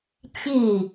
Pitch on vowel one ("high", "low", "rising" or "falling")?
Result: falling